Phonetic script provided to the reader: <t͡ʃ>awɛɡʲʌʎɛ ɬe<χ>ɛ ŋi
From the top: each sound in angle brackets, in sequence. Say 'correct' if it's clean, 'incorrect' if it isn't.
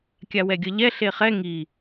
incorrect: kʲ, correct

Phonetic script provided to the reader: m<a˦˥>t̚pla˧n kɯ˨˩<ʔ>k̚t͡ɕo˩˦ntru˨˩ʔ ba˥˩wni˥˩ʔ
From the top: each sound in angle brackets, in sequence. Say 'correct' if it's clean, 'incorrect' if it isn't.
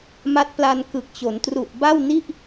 correct, incorrect: none

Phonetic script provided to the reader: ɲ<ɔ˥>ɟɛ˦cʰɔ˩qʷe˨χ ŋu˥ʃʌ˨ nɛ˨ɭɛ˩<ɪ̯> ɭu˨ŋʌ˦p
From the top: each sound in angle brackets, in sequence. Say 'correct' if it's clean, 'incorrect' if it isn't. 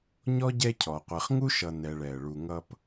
correct, incorrect: ə̯

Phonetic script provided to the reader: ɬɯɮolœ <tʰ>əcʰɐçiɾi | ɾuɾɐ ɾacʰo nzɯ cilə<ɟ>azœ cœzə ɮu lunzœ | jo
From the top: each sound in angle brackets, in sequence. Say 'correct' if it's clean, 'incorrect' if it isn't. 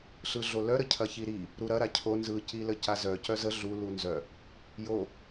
incorrect: ɾ, incorrect: c

